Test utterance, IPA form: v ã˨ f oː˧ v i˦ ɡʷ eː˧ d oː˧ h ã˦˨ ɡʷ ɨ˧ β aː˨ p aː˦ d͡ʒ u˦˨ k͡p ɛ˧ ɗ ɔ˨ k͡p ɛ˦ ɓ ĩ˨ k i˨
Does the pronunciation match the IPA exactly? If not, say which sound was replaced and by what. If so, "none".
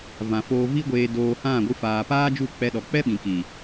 β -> f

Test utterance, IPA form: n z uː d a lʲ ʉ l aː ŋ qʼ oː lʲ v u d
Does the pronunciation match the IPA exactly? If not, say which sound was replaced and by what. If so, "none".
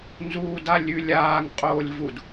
l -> lʲ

